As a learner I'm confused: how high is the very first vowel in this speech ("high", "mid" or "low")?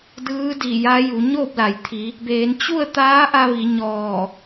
high